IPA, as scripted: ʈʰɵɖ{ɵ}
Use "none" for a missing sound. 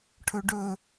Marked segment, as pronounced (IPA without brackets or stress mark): ɵ